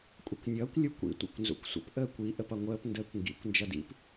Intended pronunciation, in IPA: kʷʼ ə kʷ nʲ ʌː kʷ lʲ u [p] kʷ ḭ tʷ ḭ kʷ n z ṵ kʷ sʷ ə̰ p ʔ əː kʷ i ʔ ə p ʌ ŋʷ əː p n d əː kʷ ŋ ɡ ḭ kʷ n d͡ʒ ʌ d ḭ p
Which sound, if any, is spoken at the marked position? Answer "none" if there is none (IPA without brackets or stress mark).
none